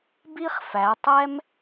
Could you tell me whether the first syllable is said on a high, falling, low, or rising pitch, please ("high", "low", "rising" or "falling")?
high